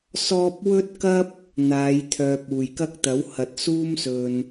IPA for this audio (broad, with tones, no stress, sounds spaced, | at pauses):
s ɔː˥ p̚ w ɵ˥ t̚ k ɐ˥ p̚ | n̪ aː˨˧ j t̪ʰ œː˨ p̚ uː˨˩ j k ɐ˥ k̚ t̪ ɐ˨˥ w h ɐ˨˥ t̚ s uː˥ m s ɵ˨ n